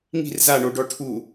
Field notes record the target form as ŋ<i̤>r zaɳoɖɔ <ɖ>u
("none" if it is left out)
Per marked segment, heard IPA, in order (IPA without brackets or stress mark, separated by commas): i̤, ʈʰ